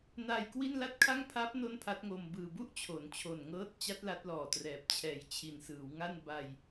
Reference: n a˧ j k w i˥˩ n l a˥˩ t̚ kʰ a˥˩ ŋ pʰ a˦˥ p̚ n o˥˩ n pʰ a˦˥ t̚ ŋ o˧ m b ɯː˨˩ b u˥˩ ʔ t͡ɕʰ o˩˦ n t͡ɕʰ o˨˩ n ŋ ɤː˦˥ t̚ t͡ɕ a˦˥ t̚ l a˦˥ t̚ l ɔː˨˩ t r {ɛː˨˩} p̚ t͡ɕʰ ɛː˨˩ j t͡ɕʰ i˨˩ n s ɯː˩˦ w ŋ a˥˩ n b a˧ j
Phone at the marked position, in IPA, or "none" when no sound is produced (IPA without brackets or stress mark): ɛː˨˩